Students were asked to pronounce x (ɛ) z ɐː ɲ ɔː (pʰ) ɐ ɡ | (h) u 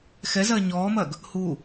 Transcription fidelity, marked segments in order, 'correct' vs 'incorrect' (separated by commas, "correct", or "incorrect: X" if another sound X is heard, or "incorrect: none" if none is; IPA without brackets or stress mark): correct, incorrect: m, correct